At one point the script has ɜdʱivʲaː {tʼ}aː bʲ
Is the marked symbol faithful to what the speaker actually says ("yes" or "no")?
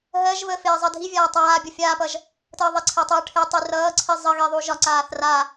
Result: no